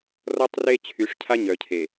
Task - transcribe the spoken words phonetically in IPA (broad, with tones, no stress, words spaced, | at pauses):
rɔ˦tˤre˦ t͡ɕʰy˨˦ʂcʰa˦ɲœ˨ cʰe˨